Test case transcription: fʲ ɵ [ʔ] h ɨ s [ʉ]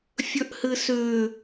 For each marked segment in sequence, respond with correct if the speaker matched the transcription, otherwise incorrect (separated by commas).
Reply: correct, correct